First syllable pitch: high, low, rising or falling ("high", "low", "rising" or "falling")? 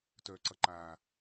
low